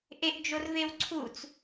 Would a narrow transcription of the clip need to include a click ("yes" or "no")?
yes